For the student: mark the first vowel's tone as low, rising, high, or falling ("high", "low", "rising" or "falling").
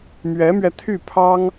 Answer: rising